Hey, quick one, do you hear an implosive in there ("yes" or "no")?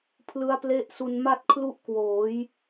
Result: no